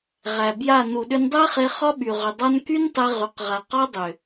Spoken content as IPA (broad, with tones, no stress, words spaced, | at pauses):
ʁæ˨bja˦˨ nu˨ɗʏ˧ndˤæ˦χe˧ χɒ˦ɓy˨ ʁʏ˨dˤa˦n ky˦ntˤe˧ ʁy˨qʁa˨ qɒ˦dˤʏ˨